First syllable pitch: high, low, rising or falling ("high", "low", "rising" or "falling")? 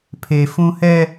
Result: high